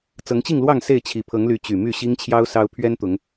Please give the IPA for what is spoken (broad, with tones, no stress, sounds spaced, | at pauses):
t͡s ɤ˨˦ ŋ t͡ɕ i˥˨ ŋ l w ɑ˥˨ ŋ s e˥˨ ɪ̯ t͡ɕʰ i˨˩ pʰ ɤ˨˦ ŋ l y˨˦ t͡ɕ y˨˩ m y˥˨ ɕ i˦ ŋ t͡ɕʰ j ɑ˦ ʊ̯ s ɑ˦ ʊ̯ pʰ ɥ ɛ˦ n t̪ ʊ˨˦ ŋ